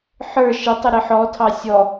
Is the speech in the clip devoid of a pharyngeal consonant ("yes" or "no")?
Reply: no